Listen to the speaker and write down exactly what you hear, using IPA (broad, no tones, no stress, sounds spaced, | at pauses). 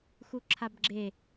x u ǁʰ a b ɡ͡ǁ e